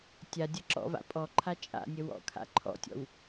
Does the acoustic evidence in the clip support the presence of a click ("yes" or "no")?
yes